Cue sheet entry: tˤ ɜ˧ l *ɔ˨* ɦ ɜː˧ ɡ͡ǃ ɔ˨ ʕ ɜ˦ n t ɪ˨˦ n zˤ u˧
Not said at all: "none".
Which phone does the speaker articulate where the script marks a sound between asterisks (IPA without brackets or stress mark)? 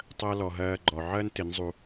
ɔ˨